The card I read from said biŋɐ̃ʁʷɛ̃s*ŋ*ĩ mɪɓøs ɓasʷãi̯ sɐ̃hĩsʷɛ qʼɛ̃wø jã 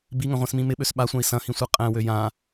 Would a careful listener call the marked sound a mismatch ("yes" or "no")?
yes